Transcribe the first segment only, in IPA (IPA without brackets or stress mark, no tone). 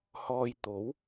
h